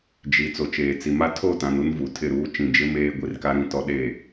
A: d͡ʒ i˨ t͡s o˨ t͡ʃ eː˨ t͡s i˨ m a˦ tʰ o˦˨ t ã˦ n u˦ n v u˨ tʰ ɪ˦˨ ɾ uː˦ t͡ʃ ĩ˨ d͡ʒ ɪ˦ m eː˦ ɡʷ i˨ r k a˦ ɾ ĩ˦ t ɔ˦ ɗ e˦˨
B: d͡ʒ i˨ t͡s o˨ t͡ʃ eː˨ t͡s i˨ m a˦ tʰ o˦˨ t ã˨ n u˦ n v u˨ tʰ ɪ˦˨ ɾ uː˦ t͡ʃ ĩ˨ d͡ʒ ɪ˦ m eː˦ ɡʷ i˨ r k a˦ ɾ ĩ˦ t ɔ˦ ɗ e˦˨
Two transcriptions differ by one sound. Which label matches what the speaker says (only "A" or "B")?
B